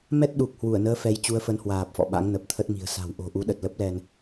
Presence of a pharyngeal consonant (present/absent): absent